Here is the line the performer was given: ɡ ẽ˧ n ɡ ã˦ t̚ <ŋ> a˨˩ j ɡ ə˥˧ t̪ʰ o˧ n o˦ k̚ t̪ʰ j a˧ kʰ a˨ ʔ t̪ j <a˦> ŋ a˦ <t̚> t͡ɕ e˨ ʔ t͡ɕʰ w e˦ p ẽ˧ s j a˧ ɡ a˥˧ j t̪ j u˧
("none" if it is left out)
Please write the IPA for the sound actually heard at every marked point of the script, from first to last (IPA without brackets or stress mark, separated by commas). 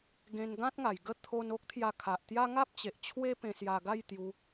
ŋ, a˦, p̚